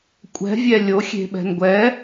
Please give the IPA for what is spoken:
kʷʼ ɛ̤ vʲ ɛ lʲ o xʲ e̤ ɓ ɛ̤ n ɡʷ ɛ

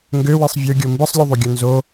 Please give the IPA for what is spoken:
ŋ ɡ ø w i sˤ vʲ ɯ ɡʲ o m b ɯ sˤ lʲ u ðˤ u ɡʲ o n z o

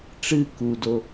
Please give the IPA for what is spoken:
ʈ͡ʂ ɨ k u d o

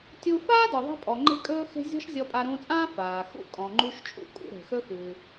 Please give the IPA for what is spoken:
tʲ u˧ f aː˥ d ɔ˩ ðˤ e̤˥ pʼ ɔ˩ ŋ͡ǃ e̤˧ kʼ ɵː˧ x e̤˧ zʲ ɔ̤˥ ʃ zʲ ɔ˧ pʼ a˧ ɾ ũː˧ t͡sʼ ãː˥ f aː˩ x ṵ˥ kʼ ɔ̃˩ ŋ͡ǃ u˧ ʃ t͡ʃʼ ṵ˥ kʼ ṵ˧ ɾ e̤˩ x ɵ˥ x ɨː˩

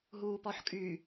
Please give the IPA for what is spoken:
ɦ uː p ɔ ħ kʼ y

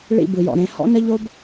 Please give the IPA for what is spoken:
ɭ ḭ˦˨ b ɯ˨ j ɔ̰˨ ɾ ẽ˨ h ɔ̰˦ n ə˦ ʎ o˦ b

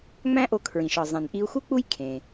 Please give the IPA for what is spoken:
ŋ͡m æ̃˥ ʔ o˧ kʰ ɹ ĩ˩ ʃ ɒ˩ zˤ ẽ˩ n ʔ i˧ u̯ x u˥ k͡p u˥ j kʰ ẽ˩

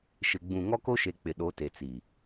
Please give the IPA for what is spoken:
ʃ ɪ˨ ɡ͡b ũ˨ ŋ ɔ˦ k o˦ ʃ e˨ k͡p ɪ˨ ɗ o˨˦ t e˨ t͡s i˨

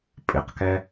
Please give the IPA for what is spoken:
pʼ ɪ q k ɛ

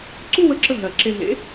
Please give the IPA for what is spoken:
ǀ u˥ w ə˧˥ ǁ ə˧ ɦ ɜ˨˩ ǁ e˧ ɦ ḛ˧˥

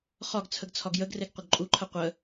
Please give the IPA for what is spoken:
χ ɒ ɡ t͡sʰ ə ɡ t͡sʰ ɒ ɡ j ə ɡ r e ɡ qʷ ə ɡ ǃʼ u ǃʰ ə qʷ ə

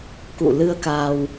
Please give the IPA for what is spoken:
k ṵ˧˨ l ɨ˧ ə̯ k a˧ w

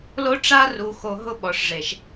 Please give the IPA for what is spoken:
l o˦ ʈ͡ʂ a˦ r u˨ x o˨ ɦ ʊ˦ ɓ ɔ˨ ʂ ʐ e˨ ʃ

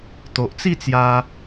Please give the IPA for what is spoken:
t̪ o˨ ʔ t͡s i˥˧ t͡s j a˧

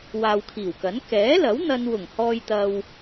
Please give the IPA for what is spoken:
w aː˨ w kʰ iː˨˩ w k ɐ˨˥ n k ɛː˨˥ l ɐ˨˥ w n̪ ɐ˧ n w ʊ˨˩ ŋ h ɔː˨ j t̪ ɐ˨ w

